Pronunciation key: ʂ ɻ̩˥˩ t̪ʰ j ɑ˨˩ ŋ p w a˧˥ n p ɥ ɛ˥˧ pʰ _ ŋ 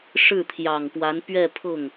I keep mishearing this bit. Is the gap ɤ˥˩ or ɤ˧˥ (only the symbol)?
ɤ˥˩